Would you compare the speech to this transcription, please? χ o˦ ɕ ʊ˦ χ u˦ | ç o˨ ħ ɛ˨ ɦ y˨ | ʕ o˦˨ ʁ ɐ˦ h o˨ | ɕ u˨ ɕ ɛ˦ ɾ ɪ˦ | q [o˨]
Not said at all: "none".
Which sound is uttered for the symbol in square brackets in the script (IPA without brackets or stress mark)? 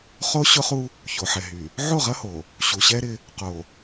o˨